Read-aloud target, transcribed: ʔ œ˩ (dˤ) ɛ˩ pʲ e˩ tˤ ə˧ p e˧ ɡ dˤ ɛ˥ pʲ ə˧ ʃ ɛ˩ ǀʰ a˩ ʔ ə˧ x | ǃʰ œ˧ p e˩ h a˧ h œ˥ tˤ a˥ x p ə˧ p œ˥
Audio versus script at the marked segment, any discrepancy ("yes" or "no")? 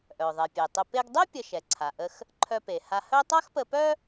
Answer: yes